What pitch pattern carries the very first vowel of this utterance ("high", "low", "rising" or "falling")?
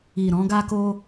low